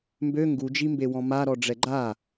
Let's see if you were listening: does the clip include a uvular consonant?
no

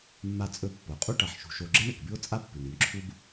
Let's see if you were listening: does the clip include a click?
yes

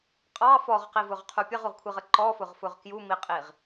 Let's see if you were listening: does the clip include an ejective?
yes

